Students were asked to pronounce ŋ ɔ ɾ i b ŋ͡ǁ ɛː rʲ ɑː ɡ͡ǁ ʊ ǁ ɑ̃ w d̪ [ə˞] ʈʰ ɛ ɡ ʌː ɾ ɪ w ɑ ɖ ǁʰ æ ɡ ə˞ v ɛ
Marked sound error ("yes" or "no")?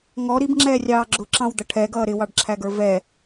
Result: yes